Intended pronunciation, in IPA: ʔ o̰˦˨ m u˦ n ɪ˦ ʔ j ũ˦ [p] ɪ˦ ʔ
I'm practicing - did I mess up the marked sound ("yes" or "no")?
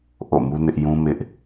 yes